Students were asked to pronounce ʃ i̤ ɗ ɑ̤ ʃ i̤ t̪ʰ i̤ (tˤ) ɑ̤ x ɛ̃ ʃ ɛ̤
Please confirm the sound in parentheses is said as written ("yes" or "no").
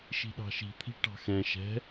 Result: no